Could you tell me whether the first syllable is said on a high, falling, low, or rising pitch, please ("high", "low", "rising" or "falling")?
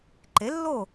rising